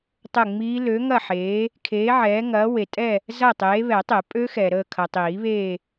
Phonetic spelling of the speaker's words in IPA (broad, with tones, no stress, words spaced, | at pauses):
tˤə˦˨ŋ͡miː˦˥ lø˨˦ŋɐ˦˨ħeː˨˦ | kʰeː˨˦ʕɛː˨˦ŋɐː˨˦ we˨tʼɛ˦˨ | zɐ˦˨ tˤeː˨˦βɛ˨˩˦tˤe˨˩˦ pʼø˦˥xɛ˨ ɾəː˦˨kʰɐ˨tˤiː˨˩˦βeː˦˨